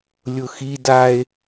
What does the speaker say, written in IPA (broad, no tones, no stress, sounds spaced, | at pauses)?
lʲ ʊ x i d a e̯